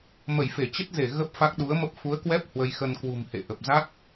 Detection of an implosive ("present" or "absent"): present